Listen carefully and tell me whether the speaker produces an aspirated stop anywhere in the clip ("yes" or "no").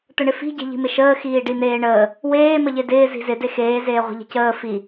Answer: no